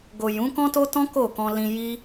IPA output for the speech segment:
ɡ o˨ j ũ˨˦ k ɔ̃˦ t o˦ t ɔ̃˦ k o˦˨ k ɔ̃˧ l ĩ˧ j i˦

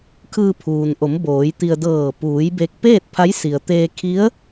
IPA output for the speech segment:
kʰ ɯː˧ pʰ uː˩ n ʔ o˩˧ m b oː˩˧ j t̪ i˧ ə̯ d ɤː˧˩ p uː˩˧ j b e˧ k̚ p eː˥˨ t̚ pʰ a˧˥ j s i˩ ə̯ t̪ eː˧ kʰ i˧˥ ə̯

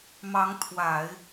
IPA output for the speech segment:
m ɑ˧˥ ŋ t̪ʰ w a˨˩˦ ɪ̯

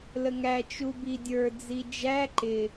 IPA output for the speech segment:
l ə ŋ æ t͡ʃ u b i dʲ ə˞ d͡z i d͡ʒ æ ǃ ɪ

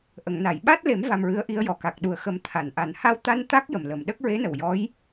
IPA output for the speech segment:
ʔ ə˨˩˨ ŋ n a˨˩˨ j ɓ a˦˥ t̚ l e˨˩˦ m v a˧ m ɹ ɨ˧˥ ə̯ ʔ i˧˥ ə̯ j ɔ˨˩ k a˨˩ k̚ ɗ u˨˩ ə̯ x ə˨˩˦ m t̪ʰ a˨˩˨ n ʔ a˨˩ n h a˧ w t̪ a˧ n t̪ a˦˥ k̚ j ə˨˩ m l ə˨˩ m ɗ ə˦˥ k̚ ɹ e˧˥ n ə˨˩ w j ɔ˧˥ j

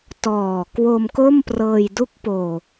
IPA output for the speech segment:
t ɔː˨˩ k w o˧ m k o˥˩ m p r ɤː˧ j d u˦˥ k̚ p oː˨˩

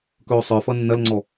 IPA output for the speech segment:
k ɵː sˤ ə˞ f ʌ nː ɐ l ŋ͡ǀ ɔ

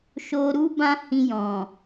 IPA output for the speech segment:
ʃ o˧ ɾ u˦ b ã˦ h ĩ˧ j ɔ̃˨

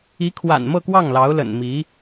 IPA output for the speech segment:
i˧˥ kʰ w a̰˨˩ n m ɤ˥˧ k w ɑ˥˩ ŋ l ɑ˧˥ ʊ̯ l ə̰˨˩ n m i˧˥

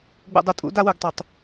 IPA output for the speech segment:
ɡ͡b ṵ˨ dˤ u˨ tʼ ṵ˨˦ d a˦ w u˨ ɡ tˤ u˨ tˤ

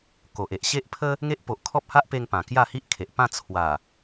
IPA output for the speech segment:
k o˨ ʔ e˨ ʔ ɕ e˦ ʔ pʰ ə˦ | ŋ e˦ ʔ p o˨ ʔ kʰ ɔ˦ p̚ h a˦ ʔ p e˧ ŋ p ã˨˩ k j a˥˧ h i˦ ʔ kʰ e˨ ʔ p ã˥˧ t͡sʰ w a˨˩

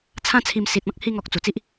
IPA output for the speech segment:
t͡sʰ ã˦ t͡sʰ i˧ m s i˨ t̚ ɔ̃˦ k̚ h i˧ ŋ ɔ˨ k̚ t͡s u˨˩ t͡s i˦ ʔ

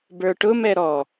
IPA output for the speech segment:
b ə˞ ʈ ʊ m ɛ ɾ ɔ

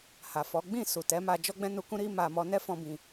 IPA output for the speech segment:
h a˨ f ɔ˨˦ ɡ͡b ĩ˦˨ s u˨ t ɛ˨˦ m a˧ d͡ʒ ɔ˦ ɡ͡b ɛ̃˦ n u˧ k ũ˦ ɾ i˦ m a˧ m ɔ˧ n ɛ˦ f ɔ̃˧ b ĩ˧

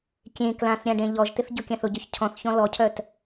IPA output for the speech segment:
kʲ ẽ k l ã θ ɾʲ ã ɖ ẽ ʎ ɔ ʒ t̪ ɪ θ ɟ ʊ kʲ ã θ ʊ ɟ œ ç cʰ ɔ̃ θ ç ɔ̃ l ɔ cʰ œ t

